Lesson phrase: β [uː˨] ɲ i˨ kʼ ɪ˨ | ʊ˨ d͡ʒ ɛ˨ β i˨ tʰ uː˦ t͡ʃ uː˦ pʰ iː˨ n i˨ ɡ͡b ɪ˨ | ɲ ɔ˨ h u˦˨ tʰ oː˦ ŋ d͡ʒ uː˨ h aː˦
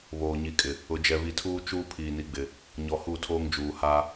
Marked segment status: incorrect: oː˨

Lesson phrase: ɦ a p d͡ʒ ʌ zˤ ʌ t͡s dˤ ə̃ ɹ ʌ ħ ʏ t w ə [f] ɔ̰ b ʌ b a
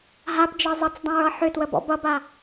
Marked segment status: incorrect: b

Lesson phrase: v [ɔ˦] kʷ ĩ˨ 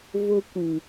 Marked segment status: incorrect: ʊ˦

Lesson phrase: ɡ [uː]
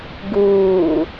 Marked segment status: correct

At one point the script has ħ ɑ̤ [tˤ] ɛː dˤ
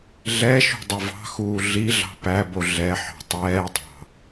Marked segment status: correct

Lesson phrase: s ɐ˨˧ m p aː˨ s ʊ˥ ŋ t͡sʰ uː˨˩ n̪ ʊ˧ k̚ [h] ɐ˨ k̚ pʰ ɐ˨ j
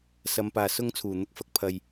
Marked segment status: incorrect: f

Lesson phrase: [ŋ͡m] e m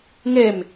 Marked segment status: incorrect: ŋ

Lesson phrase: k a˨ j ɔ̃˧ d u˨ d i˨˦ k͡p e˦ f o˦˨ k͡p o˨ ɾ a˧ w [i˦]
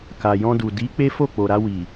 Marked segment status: incorrect: i˨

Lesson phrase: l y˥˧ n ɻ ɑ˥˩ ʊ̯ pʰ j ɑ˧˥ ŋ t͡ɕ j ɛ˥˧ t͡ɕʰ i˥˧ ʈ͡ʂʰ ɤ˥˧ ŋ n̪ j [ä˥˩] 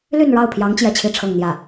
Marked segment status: correct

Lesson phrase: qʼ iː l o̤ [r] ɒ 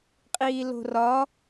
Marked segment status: correct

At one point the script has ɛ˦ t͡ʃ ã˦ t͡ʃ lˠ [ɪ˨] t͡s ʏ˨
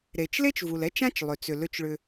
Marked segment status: incorrect: ʏ˨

